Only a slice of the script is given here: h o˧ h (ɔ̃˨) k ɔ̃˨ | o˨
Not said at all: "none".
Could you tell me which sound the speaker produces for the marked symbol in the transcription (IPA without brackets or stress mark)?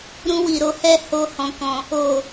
ɔ̃˨